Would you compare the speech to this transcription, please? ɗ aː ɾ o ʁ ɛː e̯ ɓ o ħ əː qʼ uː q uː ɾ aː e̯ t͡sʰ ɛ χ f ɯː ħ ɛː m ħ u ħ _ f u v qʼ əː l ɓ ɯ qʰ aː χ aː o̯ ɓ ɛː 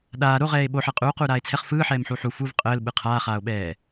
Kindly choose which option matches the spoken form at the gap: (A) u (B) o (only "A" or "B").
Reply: A